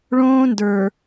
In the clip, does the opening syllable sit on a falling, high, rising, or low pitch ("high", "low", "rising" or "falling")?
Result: high